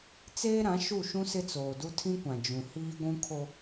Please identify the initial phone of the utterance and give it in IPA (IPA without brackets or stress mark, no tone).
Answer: t͡s